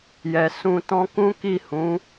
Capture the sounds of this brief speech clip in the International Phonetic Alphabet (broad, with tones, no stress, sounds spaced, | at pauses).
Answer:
j ɛ˨ s ũ˧ t ɔ̃˦ k ũ˦ k i˦˨ h ũ˨˦